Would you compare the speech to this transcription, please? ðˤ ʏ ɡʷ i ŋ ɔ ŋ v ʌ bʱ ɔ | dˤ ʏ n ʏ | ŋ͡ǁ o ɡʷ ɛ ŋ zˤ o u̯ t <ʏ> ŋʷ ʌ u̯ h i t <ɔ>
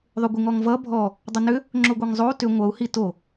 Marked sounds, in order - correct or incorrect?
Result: correct, incorrect: o

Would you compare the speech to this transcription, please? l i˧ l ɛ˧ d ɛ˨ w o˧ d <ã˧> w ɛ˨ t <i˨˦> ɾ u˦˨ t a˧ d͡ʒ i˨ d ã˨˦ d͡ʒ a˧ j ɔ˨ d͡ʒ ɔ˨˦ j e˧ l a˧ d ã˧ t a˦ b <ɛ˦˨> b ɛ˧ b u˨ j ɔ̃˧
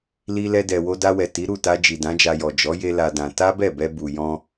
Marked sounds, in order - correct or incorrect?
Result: incorrect: a˧, correct, correct

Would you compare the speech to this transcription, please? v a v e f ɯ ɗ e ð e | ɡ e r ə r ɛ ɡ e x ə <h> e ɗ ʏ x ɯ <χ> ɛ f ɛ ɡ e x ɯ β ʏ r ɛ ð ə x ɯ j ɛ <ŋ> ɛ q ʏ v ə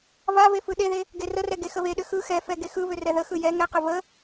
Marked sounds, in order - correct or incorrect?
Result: incorrect: β, incorrect: x, correct

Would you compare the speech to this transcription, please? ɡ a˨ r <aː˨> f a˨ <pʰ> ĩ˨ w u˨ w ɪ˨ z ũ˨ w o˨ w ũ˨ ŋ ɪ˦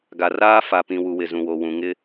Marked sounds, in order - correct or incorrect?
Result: incorrect: aː˦, incorrect: p

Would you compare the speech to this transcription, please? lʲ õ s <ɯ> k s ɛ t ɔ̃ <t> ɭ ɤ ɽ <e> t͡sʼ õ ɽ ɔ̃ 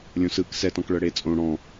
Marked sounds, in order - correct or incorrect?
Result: correct, incorrect: k, correct

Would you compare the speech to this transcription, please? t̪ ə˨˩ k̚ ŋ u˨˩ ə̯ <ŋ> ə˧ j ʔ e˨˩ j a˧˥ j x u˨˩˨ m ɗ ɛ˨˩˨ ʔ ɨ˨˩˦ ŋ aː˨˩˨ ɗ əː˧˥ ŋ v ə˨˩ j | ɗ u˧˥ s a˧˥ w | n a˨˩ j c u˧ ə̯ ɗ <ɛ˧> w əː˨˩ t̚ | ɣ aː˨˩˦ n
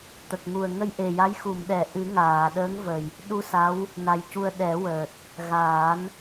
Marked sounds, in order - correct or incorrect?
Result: correct, incorrect: ɛ˨˩˦

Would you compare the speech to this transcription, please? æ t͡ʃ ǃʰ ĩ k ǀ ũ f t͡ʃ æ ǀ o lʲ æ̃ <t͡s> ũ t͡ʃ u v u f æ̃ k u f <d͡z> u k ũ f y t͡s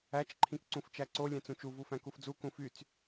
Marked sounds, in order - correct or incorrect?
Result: correct, correct

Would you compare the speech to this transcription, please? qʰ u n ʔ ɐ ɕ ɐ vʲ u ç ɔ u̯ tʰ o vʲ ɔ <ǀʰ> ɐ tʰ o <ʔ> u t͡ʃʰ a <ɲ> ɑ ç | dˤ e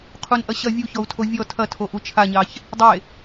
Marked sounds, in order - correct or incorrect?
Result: incorrect: tʰ, correct, correct

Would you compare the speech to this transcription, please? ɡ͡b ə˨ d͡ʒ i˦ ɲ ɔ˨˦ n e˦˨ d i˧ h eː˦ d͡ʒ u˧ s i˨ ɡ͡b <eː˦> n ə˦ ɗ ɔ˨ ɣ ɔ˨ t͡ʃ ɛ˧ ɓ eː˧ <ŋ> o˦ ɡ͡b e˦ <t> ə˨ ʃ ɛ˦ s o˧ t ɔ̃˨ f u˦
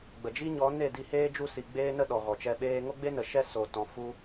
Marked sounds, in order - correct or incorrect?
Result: correct, correct, incorrect: n

